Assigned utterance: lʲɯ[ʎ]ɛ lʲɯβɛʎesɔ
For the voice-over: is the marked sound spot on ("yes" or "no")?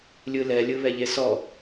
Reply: no